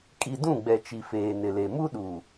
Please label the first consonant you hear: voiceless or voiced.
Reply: voiceless